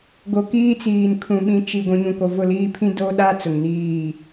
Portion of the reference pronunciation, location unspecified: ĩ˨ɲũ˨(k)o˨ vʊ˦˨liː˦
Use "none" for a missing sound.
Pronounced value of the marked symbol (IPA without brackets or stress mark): k